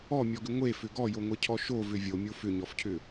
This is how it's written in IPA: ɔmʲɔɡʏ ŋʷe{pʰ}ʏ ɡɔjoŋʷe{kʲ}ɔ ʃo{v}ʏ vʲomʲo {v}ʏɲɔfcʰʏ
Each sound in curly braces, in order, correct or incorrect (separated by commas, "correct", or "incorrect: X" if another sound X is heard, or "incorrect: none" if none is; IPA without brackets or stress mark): incorrect: f, incorrect: cʰ, correct, incorrect: f